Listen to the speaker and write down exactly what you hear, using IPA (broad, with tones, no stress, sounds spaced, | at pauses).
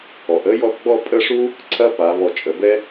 ɔ˩˧ ʔ ə˥ j ɔ˥˧ θ ɡ͡b ɔ˥˧ pʼ ə˥˧ ʂ u˥ | ǀʰ ɐ˥ p a˩˧ β ɔ˧˩ t͡ʃʼ ə˩˧ b ɛ˥